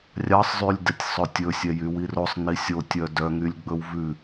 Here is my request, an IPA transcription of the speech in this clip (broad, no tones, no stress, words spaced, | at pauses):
rʲɑsˤzˤylʲdɛtʲ sˤɵtʲɵsʲɛ jywirosˤ nisʲotʲœ dœŋylʲɡ͡bɵw vʉ